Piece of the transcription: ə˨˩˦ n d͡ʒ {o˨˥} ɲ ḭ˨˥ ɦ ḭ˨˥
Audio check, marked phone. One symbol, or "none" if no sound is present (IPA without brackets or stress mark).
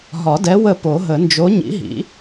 o˨˥